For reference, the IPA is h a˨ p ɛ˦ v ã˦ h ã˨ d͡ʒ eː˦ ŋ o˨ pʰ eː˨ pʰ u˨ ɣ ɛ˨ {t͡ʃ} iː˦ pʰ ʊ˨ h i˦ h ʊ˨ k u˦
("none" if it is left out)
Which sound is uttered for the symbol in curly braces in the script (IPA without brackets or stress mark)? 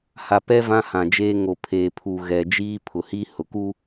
d͡ʒ